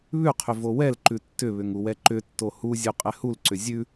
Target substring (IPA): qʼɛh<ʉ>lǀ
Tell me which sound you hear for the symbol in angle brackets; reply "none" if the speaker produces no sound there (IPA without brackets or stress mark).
u